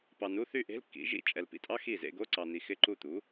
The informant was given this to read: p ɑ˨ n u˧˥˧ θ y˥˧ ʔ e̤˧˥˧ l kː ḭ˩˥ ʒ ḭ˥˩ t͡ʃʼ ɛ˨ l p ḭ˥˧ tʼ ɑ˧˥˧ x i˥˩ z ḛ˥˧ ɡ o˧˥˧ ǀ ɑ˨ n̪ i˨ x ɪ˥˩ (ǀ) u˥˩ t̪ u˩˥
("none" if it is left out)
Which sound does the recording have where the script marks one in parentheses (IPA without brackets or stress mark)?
ǃ